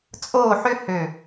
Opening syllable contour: falling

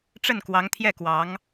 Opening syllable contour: falling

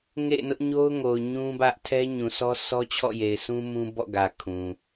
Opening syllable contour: falling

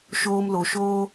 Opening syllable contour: high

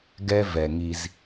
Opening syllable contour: low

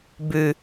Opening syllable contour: low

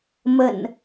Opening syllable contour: low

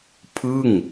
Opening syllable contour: falling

